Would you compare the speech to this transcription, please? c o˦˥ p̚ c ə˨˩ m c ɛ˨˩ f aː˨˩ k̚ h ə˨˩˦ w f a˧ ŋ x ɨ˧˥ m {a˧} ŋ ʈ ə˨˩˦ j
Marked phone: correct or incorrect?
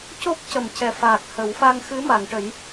incorrect